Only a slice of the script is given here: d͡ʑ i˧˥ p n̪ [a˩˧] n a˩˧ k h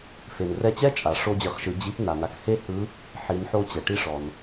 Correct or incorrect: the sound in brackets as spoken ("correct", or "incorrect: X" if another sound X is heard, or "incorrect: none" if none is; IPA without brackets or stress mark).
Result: incorrect: a˩